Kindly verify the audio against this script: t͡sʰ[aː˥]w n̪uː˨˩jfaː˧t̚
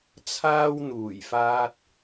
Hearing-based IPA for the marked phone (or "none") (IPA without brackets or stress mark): aː˥